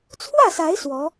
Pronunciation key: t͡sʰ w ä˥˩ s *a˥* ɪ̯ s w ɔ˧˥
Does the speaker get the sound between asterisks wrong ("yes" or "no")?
yes